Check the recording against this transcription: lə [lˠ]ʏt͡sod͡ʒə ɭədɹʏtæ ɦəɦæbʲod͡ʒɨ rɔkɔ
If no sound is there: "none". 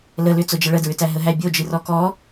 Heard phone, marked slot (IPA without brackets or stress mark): l